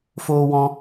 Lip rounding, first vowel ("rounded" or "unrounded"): rounded